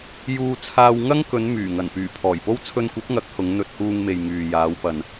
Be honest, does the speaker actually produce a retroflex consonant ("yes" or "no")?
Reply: no